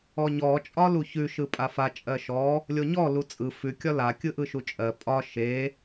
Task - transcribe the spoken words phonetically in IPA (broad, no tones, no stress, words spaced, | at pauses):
ɔɲɔ t͡ʃʼɒluçʉ ʃɯpʼafa t͡ʃʼɜʃɔ | lʲoɲɔ lut͡sʼɯ fʉ kʲɒla kʲɯʔɯʃut͡ʃʼɜ pʼɒ ʃe